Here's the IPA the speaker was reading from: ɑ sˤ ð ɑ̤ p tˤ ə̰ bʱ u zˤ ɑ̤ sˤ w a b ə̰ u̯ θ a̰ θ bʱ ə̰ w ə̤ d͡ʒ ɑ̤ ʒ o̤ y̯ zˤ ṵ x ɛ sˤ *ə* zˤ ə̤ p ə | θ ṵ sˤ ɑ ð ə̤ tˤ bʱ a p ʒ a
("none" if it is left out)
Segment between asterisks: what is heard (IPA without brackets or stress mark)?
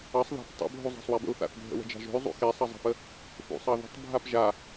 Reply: ʌ